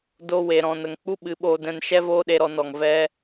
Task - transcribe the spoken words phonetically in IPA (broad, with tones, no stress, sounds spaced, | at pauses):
d o˧ w e˨ ɾ ɔ̃˨ n ə˨ ŋ k͡p u˦ ɓ ɨ˨˦ ɓ oː˧ d ɛ̃˧ n ʃ ɛ˦ v oː˦ ɗ e˧ ɾ ɔ˧ n ɔ˨ ŋ v ɛ˦